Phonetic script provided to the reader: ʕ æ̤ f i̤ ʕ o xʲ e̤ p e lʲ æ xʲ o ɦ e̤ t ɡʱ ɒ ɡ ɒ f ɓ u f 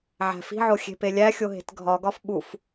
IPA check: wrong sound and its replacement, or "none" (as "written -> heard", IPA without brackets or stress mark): none